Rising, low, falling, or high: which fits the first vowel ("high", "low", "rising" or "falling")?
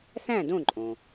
falling